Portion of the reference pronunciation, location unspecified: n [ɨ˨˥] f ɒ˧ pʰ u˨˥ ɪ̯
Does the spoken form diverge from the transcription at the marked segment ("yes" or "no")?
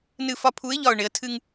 yes